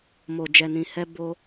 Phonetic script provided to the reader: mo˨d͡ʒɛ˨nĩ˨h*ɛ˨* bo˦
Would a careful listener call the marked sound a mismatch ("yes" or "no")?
yes